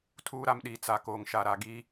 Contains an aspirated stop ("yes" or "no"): yes